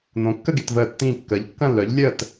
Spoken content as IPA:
n̪ õ˨˥ kː ə˥˧ ɡ e˨˥ t v əː˥˩ tː ĩː˥˧ kː əː˨˥ ʎ kː ɐ̃˥˧ lː œ˨˥ ʎ lʲ əː˥˧ t

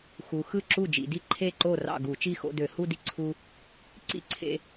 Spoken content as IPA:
x u˩˧ x ɯ˥˩ ǁ u˥˩ d͡ʒ ḭ˧˩˧ d i˥˩ ǃʰ e˥˩ ǃ o˥˩ r ɑ̰˥˩ ɡ u˧˩˧ t͡ʃ i˥˧ x o̰˥˧ d ø˧˩˧ h u˥˧ d i˥˩ ǀʰ u˧ | ǀ ḭ˥˩ ǀʰ ḛ˧

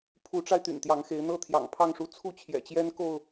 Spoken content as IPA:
pʰ u˨˦ ʈ͡ʂ a˧ ɪ̯ t̪ y̰˨˩ n t̪ j ɑ˨˦ ŋ x e˨˦ ɪ̯ n̪ ɤ˥˨ t̪ʰ j ɑ̰˨˩ ŋ pʰ ɑ˥˨ ŋ ʂ u˦ t͡sʰ u˥˨ t͡ɕʰ j ɛ̰˨˩ t͡ɕ j ɛ˦ n k o˥˨ ʊ̯

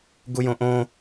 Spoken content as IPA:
ɡ u j õ ʔ õ

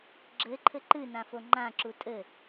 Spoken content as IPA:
ɡ͡ǁ ɘ ǃʰ ɘ ǃ ɨ n ã f o ŋ͡ǃ ã ǁ u tʼ ɘ

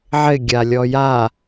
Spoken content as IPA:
ʕ ɪ ɡʲ a lʲ ɔ j a

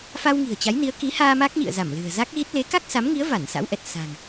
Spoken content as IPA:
f a˧ w ŋ i̤˨˩ ə̯ t͡ɕ a˨˦ j n i˨˦ ə̯ k i˨˦ h aː˧ m a˦˥ k̚ ɲ ḭ˧˨ ə̯ z a˧˩ m l ɨ̤˨˩ ə̯ z a˦˥ k̚ ɣ i˦˥ t̚ l e˨˦ k a˦˥ k̚ s a˨˦ m ŋ i˨˦ ə̯ v a˧˩ n s a̰˧˥ w ʔ ɛ˨˩ t̚ s a̤˨˩ ŋ

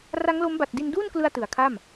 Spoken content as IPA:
r a˦˥ ŋ l o˦˥ m b a˨˩ t̚ d i˧ n d uː˥˩ n k l ɯ˧ a̯ t ɯ˩˦ a̯ kʰ a˥˩ m

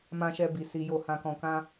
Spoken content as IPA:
m ã˧ ʃ ɛ˧ b i˨ s i˨ j o˨ h ã˨ k ɔ̃˨ k ã˧

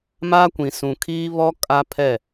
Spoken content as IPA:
m a˦ kʷ ĩ˨ s ũ˨ kʰ iː˦ β ɔ˦ kʼ a˦ pʰ ɛ˦˨

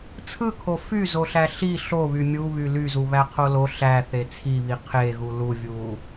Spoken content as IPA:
t͡sʰ ɯ kʰ o f y z o ɬ æ ɬ i ɬ o β y mʲ u β y l y z u β æ qʰ o l o ɬ æ θ e t͡sʰ i β i qʰ e ɣ u l u vʲ u

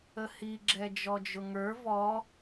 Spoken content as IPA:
ə h i ɡ͡ǁ ɛ d͡ʒ ɔ d͡ʒ ʊ ŋ ə˞ v ɔ

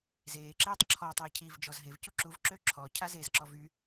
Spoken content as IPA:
z eː ǁ eː tˤ ǁʰ ɔ tˤ eː cʰ i v d͡ʒ ɔ z ɦ e v c u ǁ u v ǁ ø ǁʰ ɔ cʰ a z e z ǁ ɔ v y

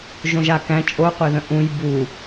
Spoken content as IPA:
ʒ õ ʒ a k æ̃ t͡ʃʼ o qʷ e ð ə̃ ʔ ũ j b u

